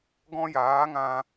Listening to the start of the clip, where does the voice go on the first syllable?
high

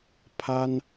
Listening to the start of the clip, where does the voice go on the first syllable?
high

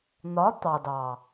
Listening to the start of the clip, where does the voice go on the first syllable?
rising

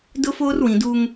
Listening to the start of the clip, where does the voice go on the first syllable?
high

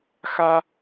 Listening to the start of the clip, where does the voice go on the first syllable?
high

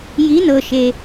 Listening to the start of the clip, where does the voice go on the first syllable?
rising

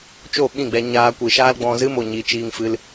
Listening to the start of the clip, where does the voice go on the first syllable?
falling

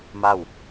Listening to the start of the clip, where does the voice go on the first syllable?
falling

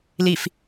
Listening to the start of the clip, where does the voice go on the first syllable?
low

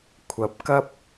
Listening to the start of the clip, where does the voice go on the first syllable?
rising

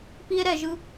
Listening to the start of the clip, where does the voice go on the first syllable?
high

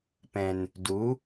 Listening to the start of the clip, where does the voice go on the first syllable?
low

